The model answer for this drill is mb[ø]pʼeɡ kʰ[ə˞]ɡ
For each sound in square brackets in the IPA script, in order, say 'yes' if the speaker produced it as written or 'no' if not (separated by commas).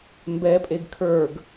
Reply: no, yes